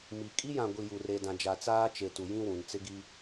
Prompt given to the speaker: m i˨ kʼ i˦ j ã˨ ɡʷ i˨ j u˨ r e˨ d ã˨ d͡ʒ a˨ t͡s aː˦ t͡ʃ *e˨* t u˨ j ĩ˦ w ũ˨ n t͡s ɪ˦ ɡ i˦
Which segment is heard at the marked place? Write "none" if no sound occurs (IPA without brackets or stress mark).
e˨